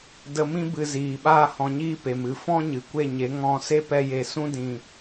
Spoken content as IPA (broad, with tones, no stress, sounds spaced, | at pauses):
d ə˧ m ĩ˦ b ɨ˧ z iː˨ ɓ aː˦ h ɔ̃˧ ɲ iː˦ p e˨ m ɨ˦˨ f ɔ̃˦ ɲ ɨ˨ kʷ e˦˨ ɲ e˨˦ ŋ ɔ̃˧ s e˦ p ɛ˧ j e˨ s ũ˦ d ĩ˨